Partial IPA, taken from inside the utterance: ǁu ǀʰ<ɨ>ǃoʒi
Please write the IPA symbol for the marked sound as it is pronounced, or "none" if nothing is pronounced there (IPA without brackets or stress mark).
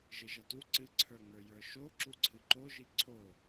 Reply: ɨ